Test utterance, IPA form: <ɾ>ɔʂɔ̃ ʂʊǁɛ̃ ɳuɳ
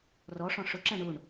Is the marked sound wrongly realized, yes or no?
yes